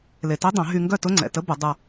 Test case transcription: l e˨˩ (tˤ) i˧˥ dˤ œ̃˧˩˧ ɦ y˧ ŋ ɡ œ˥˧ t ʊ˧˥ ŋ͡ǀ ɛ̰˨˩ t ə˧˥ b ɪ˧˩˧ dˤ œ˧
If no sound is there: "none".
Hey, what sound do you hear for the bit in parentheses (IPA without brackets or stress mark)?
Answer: t